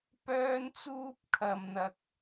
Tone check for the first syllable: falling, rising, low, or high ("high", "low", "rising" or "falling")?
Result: high